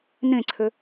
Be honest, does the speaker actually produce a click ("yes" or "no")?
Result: yes